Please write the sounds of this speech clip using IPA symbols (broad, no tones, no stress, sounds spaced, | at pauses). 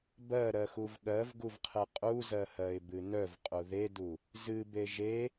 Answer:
b ɜ ɾ ɜ x u v ɠ ɜ v ɡ u v qʰ ɨ qʼ u z ɜ h ɜ ɪ̯ b ɨ n œ v qʼ u ð e d u | z ɨ b e ʒ e